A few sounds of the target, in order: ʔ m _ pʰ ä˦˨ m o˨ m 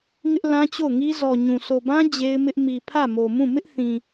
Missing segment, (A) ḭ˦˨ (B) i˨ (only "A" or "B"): B